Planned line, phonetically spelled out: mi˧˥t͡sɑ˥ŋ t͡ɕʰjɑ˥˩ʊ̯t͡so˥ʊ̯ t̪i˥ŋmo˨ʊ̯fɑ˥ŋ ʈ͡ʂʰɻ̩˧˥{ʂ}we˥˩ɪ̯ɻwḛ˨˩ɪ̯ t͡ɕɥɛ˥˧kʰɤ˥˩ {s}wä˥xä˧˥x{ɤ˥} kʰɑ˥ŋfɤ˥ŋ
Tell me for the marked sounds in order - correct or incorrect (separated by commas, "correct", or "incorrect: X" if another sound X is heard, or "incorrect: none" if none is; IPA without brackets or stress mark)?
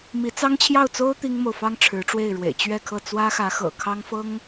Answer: incorrect: ʈ͡ʂ, incorrect: t͡s, incorrect: ɤ̰˨˩